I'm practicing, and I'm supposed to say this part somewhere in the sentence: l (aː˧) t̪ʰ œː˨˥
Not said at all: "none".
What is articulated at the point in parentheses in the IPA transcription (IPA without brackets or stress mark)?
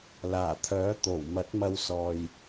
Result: aː˨˩